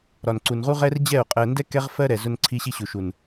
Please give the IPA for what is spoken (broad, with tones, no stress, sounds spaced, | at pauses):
ɾ ɒ˨ n ǀ u˨ n ʁ u˦ ʁ ɛ˦ r d͡ʑ ɛ˦˨ o̯ qʼ ɜ˨ n d ɛ˦ k ɛ˦ ʁ f ɜ˦ ɾ ɛ˨ z ʊ˦ n ǀʰ i˦ ɕ i˦ ɕ u˨ ʃ u˨ n